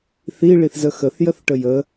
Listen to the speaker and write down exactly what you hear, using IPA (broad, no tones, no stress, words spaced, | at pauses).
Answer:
θi ɭiθzəxəθ jəθʈəjə